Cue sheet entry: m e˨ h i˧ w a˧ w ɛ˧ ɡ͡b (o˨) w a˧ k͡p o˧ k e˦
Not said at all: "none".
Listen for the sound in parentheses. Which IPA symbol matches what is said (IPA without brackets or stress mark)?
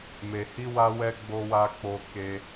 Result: o˧